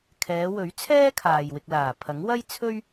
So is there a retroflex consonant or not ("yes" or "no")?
no